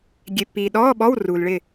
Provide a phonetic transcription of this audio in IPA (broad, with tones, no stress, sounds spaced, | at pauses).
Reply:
ɡʲ e˨ pː iː˨ ɗ ɔː˧˥˧ ɓ ɔ˧˥˧ w r u˨ l ɭ ɪ˥˨